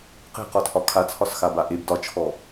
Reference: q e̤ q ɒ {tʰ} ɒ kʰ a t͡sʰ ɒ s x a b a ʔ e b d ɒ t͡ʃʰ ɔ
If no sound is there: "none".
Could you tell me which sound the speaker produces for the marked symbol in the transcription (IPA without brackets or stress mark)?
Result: tʰ